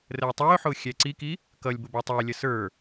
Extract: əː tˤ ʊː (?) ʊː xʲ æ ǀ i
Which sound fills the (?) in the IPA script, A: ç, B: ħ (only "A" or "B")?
B